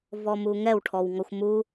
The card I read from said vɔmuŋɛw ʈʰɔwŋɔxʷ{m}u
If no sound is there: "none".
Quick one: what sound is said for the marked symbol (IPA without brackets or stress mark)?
m